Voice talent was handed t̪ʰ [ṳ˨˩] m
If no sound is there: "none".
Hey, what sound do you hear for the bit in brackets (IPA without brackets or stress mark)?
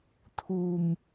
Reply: ṳ˨˩